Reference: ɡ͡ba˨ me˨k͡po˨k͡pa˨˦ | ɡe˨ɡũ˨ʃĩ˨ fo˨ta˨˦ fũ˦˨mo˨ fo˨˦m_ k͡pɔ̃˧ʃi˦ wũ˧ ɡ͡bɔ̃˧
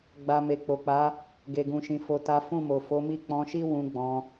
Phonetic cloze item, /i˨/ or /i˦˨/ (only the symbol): i˦˨